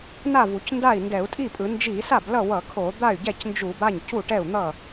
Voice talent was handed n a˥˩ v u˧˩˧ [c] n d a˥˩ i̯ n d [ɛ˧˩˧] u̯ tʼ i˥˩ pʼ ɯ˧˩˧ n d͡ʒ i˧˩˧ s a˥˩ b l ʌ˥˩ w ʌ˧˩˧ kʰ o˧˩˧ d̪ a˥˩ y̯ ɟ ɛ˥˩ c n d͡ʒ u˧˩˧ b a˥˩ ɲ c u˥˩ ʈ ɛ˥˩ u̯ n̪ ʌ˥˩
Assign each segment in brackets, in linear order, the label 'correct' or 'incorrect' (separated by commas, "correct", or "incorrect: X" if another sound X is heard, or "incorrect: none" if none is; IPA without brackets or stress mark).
correct, correct